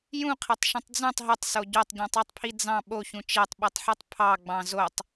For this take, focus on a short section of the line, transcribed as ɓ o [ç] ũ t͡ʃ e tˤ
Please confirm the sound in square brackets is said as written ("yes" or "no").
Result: yes